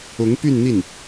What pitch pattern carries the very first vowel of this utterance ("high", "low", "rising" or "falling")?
rising